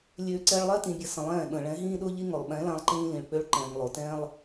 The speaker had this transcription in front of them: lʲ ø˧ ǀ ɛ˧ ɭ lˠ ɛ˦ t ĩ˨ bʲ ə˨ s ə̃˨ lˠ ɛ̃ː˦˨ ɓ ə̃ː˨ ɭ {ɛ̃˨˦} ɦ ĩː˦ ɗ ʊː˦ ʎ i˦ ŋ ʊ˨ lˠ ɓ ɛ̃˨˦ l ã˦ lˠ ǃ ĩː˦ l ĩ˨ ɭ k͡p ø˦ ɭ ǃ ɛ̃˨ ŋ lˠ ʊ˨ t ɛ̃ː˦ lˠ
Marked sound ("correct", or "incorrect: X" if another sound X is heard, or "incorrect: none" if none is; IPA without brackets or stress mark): correct